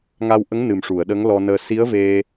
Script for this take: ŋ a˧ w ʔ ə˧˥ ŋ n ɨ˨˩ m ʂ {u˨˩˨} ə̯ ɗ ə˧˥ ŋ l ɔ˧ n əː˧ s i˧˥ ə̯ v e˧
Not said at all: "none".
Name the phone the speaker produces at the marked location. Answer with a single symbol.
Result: u˨˩˨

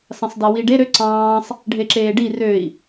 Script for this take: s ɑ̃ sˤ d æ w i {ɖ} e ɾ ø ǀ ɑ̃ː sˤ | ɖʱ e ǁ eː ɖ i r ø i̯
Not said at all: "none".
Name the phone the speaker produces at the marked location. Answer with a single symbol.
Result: ɖ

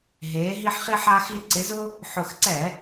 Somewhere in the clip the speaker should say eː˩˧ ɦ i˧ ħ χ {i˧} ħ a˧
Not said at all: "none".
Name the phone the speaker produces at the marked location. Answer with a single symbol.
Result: i˧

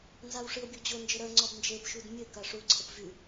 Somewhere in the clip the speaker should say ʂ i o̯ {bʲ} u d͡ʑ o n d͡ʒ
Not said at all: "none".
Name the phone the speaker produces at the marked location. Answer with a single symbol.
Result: bʲ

